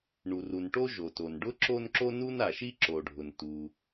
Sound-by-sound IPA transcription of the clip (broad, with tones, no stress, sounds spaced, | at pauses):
ɳ u˩ r u˩ n ʈ o˥ ʒ o˩ t o˩ n ɖ ʊ˥ ǁ o˥ n ǁ o˥ n u˥ n a˩ ʃ i˥ ǁ o˩ ɖʱ ʊ˩ n t u˩